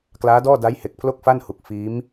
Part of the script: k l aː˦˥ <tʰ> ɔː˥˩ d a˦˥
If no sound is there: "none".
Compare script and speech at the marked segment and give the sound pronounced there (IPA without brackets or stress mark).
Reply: d